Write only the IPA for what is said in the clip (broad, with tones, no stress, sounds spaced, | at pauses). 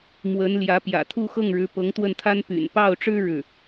m w ə˧˥ n l j ä˧˥ p j ä̰˨˩ t̪ʰ u˥˧ x ɤ˥˩ ŋ ɻ ɻ̩˧˥ p ɤ˧˥ ŋ t̪ w ə˥˩ n t̪ʰ a˥ n p y̰˨˩ n p ɑ˥˩ ʊ̯ ʈ͡ʂ ɻ̩˥ ɻ ɻ̩˥˩